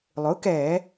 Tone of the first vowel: rising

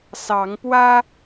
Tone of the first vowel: rising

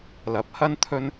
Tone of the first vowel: rising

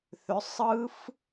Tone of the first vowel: rising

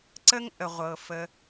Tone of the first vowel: high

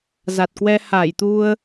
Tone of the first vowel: low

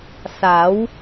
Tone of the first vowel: rising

